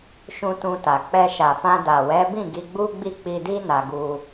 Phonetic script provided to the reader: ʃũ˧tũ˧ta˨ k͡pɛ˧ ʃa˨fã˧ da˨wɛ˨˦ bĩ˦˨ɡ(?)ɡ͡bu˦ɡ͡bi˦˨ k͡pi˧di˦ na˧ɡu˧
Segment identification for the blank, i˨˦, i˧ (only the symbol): i˧